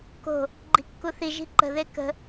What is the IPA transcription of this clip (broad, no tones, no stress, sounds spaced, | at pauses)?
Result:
k o̤ | ɡ͡ǃ i̤ kː u θ i ʒ i̤ ǃ ə̤ ð e k ə̤